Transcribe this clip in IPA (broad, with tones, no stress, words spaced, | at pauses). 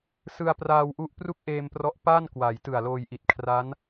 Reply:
sɯ˧a̯praː˧wʔu˦˥ʔ pru˥˩k̚ʔeː˧mprɔ˦˥ʔ paː˥˩n kwa˩˦j tɯ˨˩a̯loː˧jʔi˨˩t̚ kʰra˦˥n